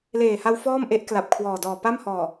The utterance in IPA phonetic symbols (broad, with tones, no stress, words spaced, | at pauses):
leː˨˩ha˧w fɔː˥˩mʔe˦˥ʔkla˨˩p̚ kʰwɔː˨˩dɔː˨˩ pa˥˩mhɔː˨˩